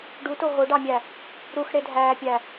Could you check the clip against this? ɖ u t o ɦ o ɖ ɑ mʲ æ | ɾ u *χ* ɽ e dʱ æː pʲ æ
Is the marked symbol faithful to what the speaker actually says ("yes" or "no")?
no